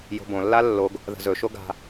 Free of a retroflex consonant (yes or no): yes